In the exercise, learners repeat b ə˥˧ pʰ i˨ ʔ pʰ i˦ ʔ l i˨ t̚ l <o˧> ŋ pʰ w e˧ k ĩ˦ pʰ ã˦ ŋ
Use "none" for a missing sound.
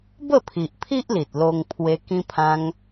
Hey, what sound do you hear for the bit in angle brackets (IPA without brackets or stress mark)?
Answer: o˧